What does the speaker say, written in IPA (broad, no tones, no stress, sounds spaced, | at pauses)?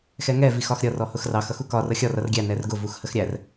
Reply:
x ɛ ŋ ɛ v i x ɒ x ɾʲ ʌ r ɔ h ʊ x r ɑ x ʌ x u k ɒ r ʌ xʲ ɒ r ʌ r ɡʲ æ n ɛ r ɡ ʊ v u x h ə x ɾʲ æ r